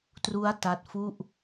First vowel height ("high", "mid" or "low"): high